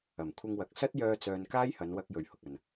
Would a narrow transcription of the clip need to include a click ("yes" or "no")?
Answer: no